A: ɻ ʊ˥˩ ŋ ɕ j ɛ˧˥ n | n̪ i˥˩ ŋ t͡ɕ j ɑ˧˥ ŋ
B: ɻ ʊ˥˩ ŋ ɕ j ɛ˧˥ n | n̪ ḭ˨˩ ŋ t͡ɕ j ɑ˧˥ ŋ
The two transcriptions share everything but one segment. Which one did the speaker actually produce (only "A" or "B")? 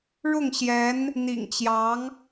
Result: B